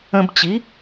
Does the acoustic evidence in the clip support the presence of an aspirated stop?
no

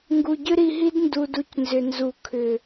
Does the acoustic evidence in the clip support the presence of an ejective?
no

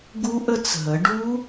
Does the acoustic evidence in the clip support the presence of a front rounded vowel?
no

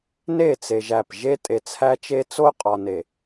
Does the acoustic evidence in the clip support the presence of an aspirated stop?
yes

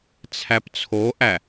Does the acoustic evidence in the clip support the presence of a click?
no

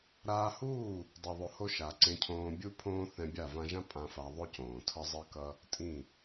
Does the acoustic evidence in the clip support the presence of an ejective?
yes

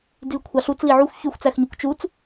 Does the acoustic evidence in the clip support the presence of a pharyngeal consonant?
yes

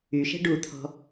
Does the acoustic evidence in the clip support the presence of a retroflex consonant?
yes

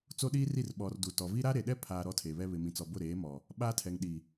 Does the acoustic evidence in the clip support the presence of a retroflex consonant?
no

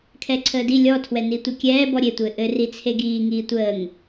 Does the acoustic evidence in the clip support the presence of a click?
yes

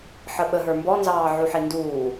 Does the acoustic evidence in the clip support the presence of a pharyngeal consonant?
yes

